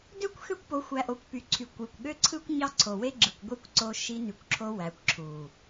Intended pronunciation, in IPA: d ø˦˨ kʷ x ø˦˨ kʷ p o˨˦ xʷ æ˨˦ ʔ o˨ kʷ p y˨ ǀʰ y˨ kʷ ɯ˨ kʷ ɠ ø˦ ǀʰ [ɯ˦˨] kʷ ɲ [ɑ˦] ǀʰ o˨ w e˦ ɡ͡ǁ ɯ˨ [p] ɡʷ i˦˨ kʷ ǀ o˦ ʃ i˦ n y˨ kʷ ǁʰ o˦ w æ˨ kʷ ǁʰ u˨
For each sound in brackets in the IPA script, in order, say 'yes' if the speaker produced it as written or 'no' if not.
no, yes, no

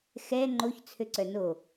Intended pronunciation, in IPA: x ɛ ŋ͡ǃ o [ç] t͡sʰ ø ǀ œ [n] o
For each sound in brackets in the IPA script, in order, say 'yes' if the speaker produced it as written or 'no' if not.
yes, yes

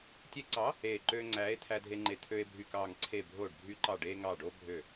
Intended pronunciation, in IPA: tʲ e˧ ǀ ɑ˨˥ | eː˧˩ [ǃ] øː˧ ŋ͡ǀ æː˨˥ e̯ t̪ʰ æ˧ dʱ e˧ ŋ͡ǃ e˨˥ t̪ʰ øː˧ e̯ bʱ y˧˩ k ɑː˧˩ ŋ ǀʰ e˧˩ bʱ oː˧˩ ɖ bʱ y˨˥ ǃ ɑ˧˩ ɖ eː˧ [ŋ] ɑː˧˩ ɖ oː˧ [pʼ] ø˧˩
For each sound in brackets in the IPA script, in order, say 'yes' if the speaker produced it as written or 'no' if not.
yes, yes, no

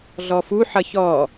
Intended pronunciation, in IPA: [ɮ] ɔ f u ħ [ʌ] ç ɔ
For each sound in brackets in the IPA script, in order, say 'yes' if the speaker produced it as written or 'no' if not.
yes, yes

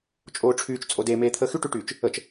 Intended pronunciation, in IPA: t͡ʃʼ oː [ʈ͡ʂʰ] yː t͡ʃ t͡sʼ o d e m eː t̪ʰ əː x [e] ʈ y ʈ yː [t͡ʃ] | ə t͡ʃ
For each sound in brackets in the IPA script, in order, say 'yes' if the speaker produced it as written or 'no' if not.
yes, no, yes

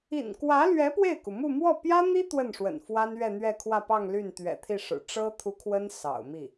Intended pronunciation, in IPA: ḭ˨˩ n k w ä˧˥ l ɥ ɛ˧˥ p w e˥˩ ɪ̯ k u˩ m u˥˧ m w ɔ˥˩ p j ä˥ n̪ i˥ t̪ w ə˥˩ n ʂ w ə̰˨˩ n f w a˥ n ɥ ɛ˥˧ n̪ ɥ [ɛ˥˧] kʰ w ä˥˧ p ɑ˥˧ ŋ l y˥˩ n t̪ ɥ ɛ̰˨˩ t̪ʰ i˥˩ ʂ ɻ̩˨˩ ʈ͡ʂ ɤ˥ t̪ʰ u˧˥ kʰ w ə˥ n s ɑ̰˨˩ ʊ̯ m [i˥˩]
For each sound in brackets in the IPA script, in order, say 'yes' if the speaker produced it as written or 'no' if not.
yes, yes

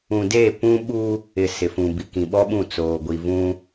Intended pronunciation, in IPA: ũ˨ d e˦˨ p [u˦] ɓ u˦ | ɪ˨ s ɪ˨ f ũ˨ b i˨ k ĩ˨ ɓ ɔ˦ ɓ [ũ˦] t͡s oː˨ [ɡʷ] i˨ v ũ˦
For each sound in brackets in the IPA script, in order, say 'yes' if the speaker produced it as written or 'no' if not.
no, no, yes

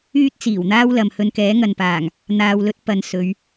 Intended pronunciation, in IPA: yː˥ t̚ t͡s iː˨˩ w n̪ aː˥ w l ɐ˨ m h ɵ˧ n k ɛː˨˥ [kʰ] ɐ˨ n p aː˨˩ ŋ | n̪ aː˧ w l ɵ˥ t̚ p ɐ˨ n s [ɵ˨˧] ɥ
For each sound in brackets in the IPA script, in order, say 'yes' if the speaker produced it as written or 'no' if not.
no, yes

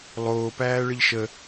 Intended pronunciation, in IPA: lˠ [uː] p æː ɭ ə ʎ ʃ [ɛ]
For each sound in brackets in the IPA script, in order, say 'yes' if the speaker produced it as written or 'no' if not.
no, no

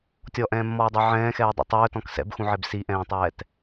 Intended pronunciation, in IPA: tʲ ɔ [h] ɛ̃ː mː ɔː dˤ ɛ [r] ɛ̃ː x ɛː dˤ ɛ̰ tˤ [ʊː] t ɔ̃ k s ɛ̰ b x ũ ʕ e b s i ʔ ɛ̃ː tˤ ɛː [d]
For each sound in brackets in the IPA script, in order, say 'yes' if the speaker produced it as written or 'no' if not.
no, no, no, no

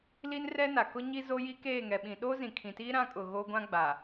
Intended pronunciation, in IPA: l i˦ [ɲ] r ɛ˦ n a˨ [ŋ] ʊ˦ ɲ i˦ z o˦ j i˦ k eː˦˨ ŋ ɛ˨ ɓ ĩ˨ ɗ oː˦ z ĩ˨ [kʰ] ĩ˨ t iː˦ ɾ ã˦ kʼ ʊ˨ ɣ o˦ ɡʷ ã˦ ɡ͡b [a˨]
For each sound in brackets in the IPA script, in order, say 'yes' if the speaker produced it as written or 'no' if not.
no, no, yes, yes

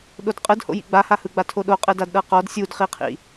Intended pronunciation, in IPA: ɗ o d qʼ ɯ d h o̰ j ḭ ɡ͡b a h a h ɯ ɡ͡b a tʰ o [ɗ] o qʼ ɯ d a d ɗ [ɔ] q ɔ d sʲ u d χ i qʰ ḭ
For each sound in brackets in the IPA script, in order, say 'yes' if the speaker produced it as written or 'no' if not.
yes, no

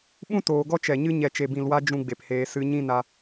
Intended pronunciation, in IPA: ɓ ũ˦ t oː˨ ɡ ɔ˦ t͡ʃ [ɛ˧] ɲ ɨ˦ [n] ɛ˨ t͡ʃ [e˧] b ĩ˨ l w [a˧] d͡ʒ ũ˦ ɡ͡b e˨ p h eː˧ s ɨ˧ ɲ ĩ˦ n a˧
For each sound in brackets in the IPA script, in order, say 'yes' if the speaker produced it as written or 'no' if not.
no, no, no, yes

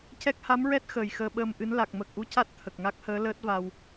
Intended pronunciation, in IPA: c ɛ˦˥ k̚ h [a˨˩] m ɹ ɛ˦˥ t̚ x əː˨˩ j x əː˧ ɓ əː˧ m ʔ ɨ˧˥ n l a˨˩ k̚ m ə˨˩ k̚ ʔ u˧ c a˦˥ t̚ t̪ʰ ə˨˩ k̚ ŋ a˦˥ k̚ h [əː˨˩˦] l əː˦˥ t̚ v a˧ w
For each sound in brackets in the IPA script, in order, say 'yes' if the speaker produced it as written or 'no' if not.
no, no

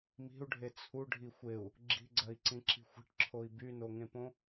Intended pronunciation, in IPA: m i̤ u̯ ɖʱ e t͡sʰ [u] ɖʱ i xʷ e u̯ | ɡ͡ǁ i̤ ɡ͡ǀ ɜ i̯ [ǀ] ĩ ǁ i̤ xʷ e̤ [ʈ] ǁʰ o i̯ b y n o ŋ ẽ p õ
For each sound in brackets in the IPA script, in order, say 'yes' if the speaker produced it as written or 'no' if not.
yes, yes, yes

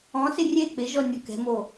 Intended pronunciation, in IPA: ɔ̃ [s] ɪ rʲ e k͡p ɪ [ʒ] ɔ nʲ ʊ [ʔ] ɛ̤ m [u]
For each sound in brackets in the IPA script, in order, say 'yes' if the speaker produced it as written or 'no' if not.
yes, yes, no, no

